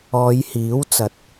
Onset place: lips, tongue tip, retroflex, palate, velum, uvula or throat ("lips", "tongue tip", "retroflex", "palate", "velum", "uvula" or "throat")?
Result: palate